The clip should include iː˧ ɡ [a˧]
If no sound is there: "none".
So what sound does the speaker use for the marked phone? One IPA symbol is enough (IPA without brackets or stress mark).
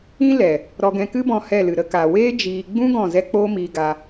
a˧